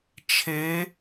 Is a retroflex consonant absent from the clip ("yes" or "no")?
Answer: yes